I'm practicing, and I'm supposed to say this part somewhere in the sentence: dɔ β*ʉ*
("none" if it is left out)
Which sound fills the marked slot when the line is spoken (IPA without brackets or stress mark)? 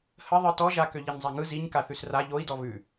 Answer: ʉ